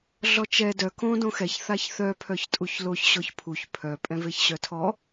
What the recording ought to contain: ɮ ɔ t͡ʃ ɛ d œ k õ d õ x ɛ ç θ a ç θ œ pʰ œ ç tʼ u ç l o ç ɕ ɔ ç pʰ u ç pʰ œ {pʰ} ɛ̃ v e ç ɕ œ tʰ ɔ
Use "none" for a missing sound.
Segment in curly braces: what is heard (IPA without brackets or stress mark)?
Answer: pʼ